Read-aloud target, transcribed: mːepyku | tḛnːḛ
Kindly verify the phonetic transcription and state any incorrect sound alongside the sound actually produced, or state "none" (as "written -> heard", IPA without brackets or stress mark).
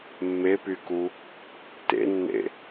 none